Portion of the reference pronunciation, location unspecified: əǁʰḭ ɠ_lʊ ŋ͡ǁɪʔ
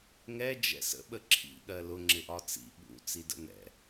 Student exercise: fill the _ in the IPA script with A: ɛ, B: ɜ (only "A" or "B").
B